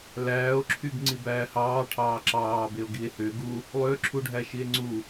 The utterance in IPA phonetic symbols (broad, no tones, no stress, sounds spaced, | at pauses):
l æː o̯ ǁʰ y ɡ ŋ͡ǀ i b æː h ɑː ʈʰ ɑː ǁ ɑː b e o̯ ɡ i e̯ h ø ɡ u | lˠ ø ǁʰ u ɖʱ æ ʃ i e̯ ŋ͡ǀ u